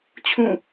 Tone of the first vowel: falling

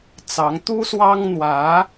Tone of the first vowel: rising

